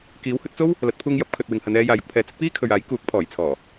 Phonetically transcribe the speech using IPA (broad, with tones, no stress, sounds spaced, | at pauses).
k iː˨˥ w h ɵ˨˥ t̚ t͡s o˥ w | l ɐ˨˥ t̚ pʰ uː˧ ŋ j ɐ˨˥ p̚ kʰ ɵ˨ t̚ w ɪ˨ ŋ h ɐ˨˧ n ɛː˧ j aː˨ j ʊ˧ k̚ pʰ ɛː˨ t͡s ɪ˨˥ k̚ p iː˥ kʰ ɵ˨ ɥ aː˨˥ j k uː˨˥ k̚ pʰ ɔː˨˩ j t͡sʰ ɔː˨˩